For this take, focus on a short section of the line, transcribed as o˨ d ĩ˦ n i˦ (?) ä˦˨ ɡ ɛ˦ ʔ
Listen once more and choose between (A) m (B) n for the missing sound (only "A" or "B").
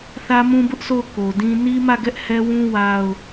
A